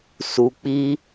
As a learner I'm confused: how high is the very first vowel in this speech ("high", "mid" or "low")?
high